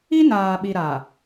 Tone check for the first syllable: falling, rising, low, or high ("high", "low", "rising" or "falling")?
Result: high